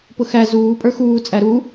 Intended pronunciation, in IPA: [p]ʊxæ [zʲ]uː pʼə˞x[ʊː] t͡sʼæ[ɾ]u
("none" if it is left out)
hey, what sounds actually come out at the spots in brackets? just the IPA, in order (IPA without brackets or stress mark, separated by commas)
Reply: p, z, uː, ɾ